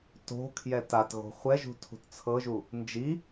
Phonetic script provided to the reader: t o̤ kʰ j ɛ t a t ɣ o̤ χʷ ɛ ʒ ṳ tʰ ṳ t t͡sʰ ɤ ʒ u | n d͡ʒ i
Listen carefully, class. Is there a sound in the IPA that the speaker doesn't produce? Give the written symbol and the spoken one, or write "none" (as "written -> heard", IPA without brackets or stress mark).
none